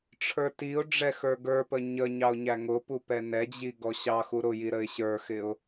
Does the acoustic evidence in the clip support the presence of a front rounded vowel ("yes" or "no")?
no